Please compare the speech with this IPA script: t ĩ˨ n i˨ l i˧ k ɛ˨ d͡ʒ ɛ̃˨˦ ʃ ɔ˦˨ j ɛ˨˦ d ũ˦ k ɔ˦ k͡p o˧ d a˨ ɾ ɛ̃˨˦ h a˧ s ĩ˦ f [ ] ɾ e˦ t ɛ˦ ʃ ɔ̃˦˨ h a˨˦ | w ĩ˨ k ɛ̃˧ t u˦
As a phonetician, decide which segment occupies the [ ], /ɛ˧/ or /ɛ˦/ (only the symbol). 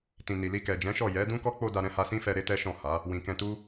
ɛ˧